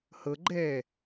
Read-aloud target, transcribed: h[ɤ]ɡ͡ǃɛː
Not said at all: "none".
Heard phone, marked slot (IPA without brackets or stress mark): ɤ